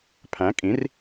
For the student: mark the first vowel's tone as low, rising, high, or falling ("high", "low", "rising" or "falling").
rising